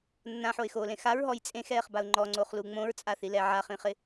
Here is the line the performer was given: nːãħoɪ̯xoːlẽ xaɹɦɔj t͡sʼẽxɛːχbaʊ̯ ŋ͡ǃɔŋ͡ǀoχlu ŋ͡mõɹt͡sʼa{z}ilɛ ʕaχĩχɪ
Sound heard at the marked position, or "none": θ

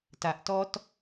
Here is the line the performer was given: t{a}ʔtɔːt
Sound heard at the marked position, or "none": a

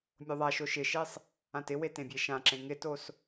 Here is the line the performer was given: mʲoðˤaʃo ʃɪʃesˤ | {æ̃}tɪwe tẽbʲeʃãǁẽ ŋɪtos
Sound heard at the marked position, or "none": ã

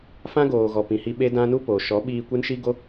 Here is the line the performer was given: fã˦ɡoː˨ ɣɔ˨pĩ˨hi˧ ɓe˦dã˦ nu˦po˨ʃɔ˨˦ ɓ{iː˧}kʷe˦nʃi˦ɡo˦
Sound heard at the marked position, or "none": iː˧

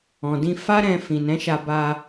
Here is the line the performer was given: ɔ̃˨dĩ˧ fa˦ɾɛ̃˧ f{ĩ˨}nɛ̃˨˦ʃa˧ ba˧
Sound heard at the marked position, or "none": ĩ˨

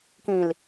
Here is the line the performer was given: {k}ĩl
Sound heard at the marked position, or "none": k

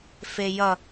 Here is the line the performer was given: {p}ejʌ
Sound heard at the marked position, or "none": f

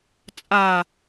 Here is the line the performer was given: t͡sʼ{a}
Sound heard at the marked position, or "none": a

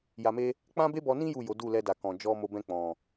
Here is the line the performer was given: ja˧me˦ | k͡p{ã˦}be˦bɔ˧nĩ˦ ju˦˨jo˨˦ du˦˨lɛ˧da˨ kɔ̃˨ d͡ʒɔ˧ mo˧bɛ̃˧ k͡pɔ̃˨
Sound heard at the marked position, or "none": ã˦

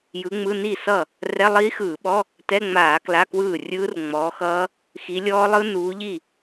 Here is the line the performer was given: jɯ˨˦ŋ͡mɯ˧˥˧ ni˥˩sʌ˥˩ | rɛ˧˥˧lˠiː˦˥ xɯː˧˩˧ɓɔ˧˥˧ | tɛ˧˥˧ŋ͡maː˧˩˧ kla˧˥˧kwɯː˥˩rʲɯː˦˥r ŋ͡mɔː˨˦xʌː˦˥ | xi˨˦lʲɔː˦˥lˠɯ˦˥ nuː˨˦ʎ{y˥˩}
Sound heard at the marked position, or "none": i˥˩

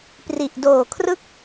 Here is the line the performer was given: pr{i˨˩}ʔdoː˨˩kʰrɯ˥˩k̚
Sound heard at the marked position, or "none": i˨˩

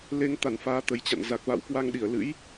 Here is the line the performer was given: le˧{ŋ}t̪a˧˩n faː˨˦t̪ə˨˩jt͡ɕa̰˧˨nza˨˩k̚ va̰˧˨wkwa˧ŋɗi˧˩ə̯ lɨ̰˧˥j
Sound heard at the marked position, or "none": ŋ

